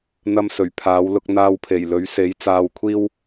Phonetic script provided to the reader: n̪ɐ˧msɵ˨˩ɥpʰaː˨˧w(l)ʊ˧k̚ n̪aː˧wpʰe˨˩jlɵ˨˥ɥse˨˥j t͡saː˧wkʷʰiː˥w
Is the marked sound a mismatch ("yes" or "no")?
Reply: no